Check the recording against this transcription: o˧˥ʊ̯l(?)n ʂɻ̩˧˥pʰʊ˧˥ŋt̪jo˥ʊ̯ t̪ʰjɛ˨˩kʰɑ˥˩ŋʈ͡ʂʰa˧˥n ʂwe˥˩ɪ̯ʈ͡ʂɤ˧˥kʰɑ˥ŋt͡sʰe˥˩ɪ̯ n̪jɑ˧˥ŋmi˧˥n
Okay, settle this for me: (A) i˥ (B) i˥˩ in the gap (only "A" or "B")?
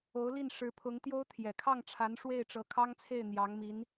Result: B